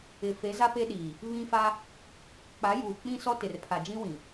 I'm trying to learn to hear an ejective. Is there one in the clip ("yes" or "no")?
no